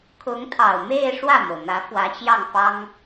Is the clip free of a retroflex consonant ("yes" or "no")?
no